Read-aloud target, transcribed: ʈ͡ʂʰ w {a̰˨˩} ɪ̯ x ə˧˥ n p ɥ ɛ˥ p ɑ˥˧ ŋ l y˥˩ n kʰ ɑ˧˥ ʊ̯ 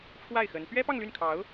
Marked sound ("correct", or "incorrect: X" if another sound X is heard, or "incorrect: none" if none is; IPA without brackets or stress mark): incorrect: a˥˩